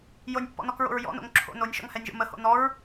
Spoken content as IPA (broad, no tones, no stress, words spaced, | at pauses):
jonʲpːɔ̰nɔkɹo̰ɹ jɔ̰no̰ŋ ǁʰo̰ nonʲʃɔ̰ŋhɛnʲʒo̰ məho̰ nɔɹ